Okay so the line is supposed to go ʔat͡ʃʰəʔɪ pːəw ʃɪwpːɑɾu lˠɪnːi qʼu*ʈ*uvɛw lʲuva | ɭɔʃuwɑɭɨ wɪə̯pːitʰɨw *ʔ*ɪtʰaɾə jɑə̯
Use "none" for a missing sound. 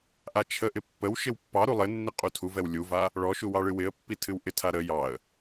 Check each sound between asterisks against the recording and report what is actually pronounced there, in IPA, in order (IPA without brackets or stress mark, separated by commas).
tʰ, ʔ